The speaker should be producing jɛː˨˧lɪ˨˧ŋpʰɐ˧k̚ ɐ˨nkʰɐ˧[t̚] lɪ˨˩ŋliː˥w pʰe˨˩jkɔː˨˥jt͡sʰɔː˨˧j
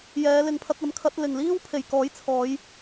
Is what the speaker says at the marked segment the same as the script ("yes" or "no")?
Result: yes